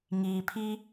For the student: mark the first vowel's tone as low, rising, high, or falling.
low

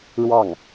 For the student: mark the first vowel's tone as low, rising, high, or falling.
falling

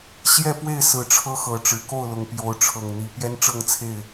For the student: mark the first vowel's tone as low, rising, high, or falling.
falling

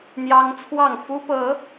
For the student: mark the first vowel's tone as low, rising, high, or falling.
high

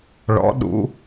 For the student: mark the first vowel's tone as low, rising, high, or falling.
rising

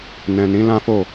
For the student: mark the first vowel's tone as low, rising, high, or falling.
low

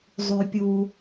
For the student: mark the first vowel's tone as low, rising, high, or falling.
low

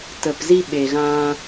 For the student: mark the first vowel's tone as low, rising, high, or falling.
low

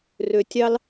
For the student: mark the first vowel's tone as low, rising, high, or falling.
low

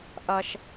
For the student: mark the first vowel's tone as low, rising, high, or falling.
low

